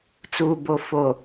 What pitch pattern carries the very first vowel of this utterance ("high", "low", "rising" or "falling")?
low